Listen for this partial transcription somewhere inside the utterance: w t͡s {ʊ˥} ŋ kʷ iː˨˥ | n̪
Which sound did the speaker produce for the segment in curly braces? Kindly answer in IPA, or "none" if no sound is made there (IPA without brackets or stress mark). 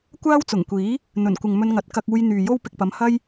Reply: ʊ˨˩